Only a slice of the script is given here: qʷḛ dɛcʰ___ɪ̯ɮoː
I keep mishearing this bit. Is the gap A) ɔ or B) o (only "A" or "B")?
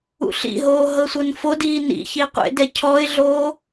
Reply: A